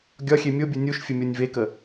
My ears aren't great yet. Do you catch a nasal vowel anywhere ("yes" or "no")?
no